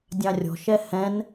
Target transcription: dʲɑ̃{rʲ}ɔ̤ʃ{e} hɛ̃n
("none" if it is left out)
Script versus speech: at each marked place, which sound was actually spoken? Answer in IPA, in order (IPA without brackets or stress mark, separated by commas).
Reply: rʲ, ɛ